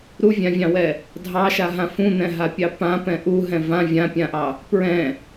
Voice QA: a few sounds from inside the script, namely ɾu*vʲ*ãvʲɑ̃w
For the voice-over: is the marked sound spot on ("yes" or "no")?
yes